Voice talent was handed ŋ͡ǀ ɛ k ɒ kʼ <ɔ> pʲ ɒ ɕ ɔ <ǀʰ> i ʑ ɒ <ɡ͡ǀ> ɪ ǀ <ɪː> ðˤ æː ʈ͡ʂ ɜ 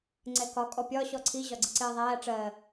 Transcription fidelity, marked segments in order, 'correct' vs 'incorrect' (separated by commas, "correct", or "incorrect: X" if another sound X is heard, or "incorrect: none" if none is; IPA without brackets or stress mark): correct, correct, correct, correct